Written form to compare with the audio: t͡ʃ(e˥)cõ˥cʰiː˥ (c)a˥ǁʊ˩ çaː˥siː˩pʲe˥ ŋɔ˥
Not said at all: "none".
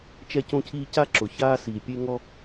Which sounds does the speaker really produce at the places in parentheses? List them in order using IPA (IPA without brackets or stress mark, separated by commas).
ɛ˥, c